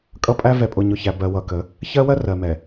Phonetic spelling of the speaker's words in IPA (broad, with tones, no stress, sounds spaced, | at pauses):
kʼ ʌ˦ pʼ æ˦ v ɛ˨ pʼ ʊ˨ ɲ ʊ˨ ç æ˨ b ɜ˨ w ʌ˨ k ə˨˦ | ç ɜ˦ w ɜ˦ r ɜ˨ m ɛ˨